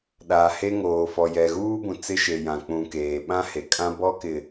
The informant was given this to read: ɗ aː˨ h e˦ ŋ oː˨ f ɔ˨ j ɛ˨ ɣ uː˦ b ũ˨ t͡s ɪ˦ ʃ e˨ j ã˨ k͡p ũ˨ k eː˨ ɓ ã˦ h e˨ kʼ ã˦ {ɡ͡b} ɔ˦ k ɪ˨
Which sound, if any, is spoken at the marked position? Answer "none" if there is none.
b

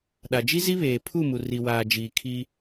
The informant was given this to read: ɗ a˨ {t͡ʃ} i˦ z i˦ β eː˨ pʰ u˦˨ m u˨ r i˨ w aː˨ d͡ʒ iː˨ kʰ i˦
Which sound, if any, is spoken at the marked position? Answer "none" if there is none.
d͡ʒ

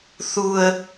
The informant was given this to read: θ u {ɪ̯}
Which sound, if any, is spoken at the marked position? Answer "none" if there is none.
ə̯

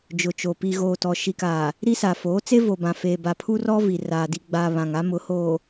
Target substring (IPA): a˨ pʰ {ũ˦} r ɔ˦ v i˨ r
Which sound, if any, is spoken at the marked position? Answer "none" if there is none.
u˦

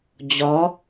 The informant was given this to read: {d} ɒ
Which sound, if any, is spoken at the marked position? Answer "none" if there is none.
d͡ʑ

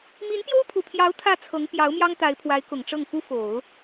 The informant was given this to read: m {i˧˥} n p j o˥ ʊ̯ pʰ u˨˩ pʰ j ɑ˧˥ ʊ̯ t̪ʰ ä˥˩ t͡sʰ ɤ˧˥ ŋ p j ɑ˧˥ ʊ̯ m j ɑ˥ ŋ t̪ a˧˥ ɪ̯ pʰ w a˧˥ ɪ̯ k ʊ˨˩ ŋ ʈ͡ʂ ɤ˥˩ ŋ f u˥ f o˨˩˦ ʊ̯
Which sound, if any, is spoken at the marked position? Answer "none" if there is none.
i˧˥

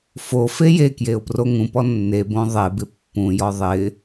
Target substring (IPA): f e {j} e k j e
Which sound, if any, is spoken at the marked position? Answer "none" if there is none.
j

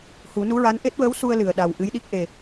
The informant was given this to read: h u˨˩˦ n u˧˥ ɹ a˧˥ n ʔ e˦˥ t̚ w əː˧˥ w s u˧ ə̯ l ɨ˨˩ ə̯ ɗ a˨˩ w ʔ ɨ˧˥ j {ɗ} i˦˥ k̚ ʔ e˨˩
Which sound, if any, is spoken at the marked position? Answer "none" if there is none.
ɗ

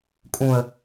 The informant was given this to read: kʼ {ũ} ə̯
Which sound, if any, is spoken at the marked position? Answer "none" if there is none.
ũ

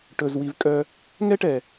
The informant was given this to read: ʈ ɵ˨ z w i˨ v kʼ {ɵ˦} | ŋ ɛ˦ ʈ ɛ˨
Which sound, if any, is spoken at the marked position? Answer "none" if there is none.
œ˦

